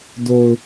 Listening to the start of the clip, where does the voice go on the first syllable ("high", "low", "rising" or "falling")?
low